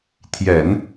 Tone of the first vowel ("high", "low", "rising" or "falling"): low